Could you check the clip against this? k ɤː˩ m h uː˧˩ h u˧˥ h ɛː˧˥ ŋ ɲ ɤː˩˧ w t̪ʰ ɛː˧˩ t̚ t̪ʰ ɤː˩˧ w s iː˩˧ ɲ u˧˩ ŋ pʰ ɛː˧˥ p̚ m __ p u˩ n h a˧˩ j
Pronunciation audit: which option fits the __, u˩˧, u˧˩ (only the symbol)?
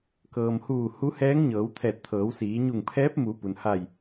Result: u˩˧